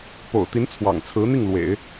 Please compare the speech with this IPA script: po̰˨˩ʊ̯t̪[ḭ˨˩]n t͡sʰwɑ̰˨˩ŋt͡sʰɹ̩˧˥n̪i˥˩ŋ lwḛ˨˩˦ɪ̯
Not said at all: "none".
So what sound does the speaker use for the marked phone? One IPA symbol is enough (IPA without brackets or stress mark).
i˧˥